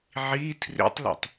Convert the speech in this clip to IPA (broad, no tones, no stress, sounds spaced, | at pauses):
ʕ i tʰ r ḭ tˤ l ṵ tˤ